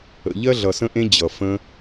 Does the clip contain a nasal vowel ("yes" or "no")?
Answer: yes